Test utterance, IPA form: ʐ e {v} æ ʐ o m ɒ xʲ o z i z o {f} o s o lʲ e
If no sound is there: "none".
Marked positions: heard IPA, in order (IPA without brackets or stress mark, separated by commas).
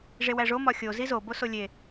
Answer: w, b